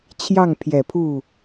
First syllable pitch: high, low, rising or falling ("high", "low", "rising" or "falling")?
falling